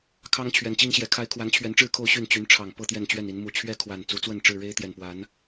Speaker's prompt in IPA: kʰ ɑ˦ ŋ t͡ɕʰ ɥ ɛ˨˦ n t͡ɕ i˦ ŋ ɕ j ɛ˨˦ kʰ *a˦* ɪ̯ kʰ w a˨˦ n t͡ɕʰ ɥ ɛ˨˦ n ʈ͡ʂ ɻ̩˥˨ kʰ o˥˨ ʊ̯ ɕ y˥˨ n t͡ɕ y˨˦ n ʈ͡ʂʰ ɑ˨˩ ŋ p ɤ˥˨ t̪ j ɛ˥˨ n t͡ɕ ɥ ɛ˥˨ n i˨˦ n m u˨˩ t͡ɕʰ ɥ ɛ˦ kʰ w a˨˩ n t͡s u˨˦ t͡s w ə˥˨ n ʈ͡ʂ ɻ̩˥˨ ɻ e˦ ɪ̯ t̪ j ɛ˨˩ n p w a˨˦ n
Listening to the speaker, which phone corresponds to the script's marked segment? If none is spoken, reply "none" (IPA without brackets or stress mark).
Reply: a˦